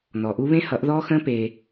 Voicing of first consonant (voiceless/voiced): voiced